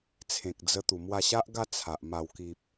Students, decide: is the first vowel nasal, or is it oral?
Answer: nasal